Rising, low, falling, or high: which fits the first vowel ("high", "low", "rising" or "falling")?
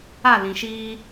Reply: falling